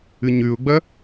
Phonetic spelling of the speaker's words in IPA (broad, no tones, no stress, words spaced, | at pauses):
ɨɲʉʊ̯ɡ͡bɐ